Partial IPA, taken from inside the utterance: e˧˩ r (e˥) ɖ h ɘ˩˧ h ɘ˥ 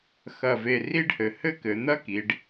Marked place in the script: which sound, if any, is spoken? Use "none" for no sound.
i˥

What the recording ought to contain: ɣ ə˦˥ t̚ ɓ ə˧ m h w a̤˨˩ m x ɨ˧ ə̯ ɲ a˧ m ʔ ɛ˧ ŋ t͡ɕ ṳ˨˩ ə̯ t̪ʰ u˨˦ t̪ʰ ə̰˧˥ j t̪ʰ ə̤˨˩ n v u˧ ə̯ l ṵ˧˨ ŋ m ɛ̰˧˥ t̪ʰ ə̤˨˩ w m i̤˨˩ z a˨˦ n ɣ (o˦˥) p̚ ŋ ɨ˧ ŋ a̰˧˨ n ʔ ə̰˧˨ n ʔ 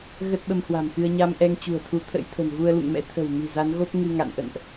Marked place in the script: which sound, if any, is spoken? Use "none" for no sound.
o˦˥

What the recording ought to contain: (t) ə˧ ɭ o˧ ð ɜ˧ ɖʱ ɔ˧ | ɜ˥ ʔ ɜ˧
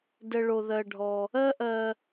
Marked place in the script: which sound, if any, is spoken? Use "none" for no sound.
d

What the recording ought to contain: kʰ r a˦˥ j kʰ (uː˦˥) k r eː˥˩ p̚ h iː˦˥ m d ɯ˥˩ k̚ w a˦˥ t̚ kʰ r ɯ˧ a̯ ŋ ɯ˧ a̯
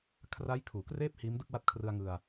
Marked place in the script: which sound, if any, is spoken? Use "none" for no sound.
uː˩˦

